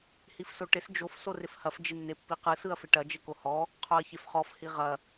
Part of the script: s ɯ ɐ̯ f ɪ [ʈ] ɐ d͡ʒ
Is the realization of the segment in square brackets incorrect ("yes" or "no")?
no